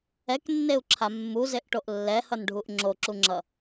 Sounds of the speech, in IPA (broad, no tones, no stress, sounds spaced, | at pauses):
ɛ k nː e u̯ ǁʰ a mː u z e ʔ ʈ o ʔ lː ɛ h ʌ n ɖʱ u ʔ ŋ͡ǁ o ǁ u ŋ͡ǁ ʌ